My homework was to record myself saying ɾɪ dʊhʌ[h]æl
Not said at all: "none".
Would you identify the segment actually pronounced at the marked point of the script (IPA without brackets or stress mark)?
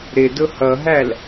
ɦ